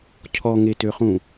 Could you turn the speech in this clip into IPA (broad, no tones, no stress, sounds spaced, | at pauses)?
cʰ ɔ ŋ e t ø χ ũ